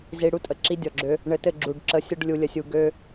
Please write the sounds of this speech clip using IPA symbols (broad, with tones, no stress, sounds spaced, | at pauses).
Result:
z i˧ ɽ u˧ tʼ ə˨ ǁ i˧ dʲ ɔ˨ ɡ͡ǁ ø˧ | ɳ ɘ˧ t ɘ˦˨ ɡ͡ǁ u˨ ɖ ǁ ə˨˦ sʲ ə˧ ɖ lʲ u˧ lʲ ə˧ sʲ u˧ ɡ ø˦